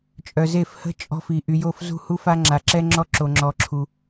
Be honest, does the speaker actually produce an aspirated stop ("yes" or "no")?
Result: yes